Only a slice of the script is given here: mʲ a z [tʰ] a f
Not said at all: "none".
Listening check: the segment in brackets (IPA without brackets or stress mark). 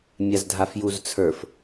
dʱ